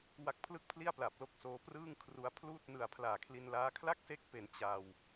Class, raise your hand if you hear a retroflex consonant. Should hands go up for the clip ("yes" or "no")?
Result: no